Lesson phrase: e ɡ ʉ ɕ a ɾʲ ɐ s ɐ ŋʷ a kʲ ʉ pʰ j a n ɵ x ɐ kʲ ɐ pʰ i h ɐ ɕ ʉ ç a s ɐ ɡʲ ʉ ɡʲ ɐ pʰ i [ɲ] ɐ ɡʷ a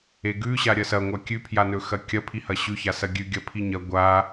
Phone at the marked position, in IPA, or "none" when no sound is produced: ɲ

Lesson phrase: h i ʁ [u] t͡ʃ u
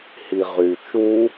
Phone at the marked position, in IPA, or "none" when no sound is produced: y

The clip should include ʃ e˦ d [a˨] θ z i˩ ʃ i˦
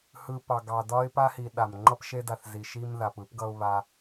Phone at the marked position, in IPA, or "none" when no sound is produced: a˨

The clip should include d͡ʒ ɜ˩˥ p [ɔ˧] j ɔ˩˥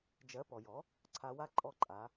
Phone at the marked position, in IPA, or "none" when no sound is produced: ɔ˩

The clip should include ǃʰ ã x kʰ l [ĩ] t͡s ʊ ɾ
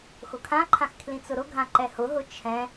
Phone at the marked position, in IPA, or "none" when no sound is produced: ĩ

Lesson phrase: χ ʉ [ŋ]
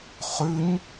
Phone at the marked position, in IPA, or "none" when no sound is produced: ɲ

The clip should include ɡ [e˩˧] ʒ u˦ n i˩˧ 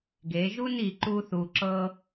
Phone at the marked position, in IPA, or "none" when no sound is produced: e˩˧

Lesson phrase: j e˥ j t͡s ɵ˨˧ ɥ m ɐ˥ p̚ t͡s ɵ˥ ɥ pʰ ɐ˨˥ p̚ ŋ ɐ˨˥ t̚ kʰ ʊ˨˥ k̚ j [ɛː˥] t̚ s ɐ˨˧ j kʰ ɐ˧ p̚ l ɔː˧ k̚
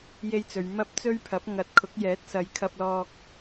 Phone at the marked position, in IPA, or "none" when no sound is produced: ɛː˨˥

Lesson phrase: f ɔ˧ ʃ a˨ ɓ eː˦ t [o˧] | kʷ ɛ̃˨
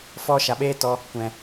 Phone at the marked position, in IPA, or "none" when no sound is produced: ɔ˧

